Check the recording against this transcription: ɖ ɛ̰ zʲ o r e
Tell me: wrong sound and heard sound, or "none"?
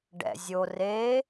none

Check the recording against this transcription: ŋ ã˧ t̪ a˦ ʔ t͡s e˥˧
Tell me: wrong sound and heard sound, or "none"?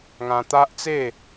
none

